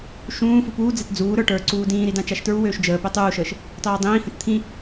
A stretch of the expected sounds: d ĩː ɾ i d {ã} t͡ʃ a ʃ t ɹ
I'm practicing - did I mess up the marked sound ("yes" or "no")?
no